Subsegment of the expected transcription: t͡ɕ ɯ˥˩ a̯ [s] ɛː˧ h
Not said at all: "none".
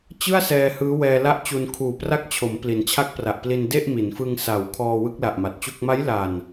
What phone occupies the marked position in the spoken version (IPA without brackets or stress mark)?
s